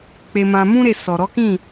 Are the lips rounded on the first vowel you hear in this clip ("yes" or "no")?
no